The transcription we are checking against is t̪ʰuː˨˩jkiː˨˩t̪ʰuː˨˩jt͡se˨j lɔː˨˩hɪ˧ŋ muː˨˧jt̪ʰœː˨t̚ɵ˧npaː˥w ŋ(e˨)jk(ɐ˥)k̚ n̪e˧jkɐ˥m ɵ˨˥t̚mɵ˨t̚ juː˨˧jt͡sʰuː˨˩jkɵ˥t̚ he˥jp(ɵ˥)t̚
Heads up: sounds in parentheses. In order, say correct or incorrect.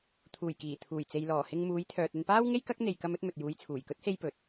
incorrect: e˥, correct, incorrect: ɵ˨

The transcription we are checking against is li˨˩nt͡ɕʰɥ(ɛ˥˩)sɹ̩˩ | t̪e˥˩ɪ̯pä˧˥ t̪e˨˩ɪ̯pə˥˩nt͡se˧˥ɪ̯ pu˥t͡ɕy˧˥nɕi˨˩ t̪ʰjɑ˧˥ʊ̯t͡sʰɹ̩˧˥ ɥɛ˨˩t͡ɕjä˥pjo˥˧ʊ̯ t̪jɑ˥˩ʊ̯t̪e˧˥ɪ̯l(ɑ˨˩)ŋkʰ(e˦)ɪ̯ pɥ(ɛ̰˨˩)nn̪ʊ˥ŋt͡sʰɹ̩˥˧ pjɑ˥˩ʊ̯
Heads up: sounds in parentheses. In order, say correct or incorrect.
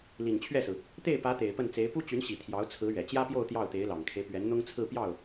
correct, correct, correct, incorrect: ɛ˧˥

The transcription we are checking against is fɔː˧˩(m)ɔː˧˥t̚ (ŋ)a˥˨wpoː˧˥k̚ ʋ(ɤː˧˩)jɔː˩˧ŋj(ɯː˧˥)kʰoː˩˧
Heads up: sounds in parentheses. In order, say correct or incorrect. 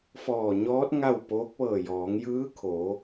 incorrect: ɲ, correct, correct, correct

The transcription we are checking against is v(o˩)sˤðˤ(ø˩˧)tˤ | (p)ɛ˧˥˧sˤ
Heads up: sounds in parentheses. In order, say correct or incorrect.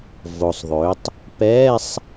correct, correct, correct

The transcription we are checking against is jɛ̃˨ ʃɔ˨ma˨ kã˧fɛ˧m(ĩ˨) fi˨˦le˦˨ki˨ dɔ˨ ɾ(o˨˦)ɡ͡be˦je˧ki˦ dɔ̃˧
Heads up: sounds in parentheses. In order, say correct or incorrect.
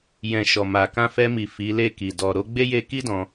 incorrect: i˨, correct

